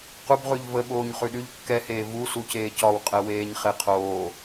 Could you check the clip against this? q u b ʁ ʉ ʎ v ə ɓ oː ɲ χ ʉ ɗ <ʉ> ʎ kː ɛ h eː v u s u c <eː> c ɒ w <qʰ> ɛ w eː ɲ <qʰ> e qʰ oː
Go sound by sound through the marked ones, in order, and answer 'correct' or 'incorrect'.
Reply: correct, correct, incorrect: qʼ, incorrect: χ

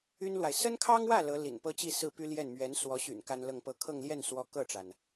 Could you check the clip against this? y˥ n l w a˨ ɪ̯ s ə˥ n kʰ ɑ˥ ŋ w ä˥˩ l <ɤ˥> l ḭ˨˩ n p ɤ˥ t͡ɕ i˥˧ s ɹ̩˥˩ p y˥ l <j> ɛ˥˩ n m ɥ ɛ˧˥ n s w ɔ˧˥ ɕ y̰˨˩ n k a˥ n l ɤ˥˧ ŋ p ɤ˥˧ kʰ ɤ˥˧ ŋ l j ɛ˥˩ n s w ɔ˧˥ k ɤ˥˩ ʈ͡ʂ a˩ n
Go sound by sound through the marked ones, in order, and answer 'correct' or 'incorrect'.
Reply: incorrect: ɤ˧˥, correct

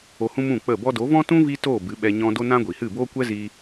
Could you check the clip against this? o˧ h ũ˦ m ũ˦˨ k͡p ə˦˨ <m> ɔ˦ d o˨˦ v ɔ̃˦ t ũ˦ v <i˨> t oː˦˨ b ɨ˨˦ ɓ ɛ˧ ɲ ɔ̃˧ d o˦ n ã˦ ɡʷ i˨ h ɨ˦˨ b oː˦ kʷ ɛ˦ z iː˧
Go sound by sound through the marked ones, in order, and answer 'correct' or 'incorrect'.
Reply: incorrect: b, incorrect: i˦

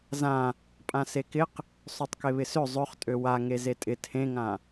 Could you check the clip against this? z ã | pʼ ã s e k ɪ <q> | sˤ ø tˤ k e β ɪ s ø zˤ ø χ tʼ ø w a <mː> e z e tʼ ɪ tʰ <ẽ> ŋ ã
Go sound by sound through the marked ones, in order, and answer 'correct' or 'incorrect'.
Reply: correct, incorrect: ŋ, correct

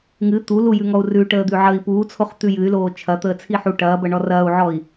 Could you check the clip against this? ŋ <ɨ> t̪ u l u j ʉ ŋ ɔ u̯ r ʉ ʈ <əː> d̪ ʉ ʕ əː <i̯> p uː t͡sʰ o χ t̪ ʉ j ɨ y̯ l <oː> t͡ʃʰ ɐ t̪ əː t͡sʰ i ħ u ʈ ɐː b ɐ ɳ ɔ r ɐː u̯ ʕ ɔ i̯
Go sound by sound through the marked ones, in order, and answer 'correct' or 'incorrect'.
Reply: correct, correct, correct, correct

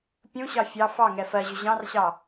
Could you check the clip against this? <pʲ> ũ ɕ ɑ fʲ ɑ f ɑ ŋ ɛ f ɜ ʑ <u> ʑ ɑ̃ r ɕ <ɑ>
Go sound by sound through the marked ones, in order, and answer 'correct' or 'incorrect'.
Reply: correct, incorrect: ʏ, correct

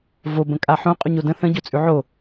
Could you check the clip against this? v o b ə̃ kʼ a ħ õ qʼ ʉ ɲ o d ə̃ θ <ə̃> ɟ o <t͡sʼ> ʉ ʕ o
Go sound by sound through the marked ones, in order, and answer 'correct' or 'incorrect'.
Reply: correct, correct

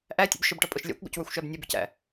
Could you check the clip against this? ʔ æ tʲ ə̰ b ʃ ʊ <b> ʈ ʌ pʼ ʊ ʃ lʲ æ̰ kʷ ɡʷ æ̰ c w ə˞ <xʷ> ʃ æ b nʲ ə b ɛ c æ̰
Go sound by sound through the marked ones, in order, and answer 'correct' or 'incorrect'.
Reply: correct, correct

